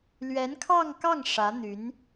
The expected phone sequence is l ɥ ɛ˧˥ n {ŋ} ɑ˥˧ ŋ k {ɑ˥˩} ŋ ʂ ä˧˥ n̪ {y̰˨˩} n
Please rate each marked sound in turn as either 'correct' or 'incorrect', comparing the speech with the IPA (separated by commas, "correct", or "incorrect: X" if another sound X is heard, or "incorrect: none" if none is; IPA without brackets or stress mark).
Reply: incorrect: kʰ, correct, incorrect: y˧˥